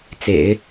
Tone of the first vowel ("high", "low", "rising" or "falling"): low